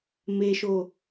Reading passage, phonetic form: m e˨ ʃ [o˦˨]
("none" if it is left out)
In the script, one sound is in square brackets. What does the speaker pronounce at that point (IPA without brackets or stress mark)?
o˨